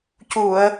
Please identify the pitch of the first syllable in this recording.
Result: low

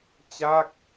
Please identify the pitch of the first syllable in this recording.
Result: falling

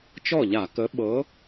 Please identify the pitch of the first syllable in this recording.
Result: falling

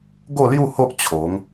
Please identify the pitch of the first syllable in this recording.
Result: falling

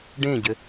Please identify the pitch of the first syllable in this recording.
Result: falling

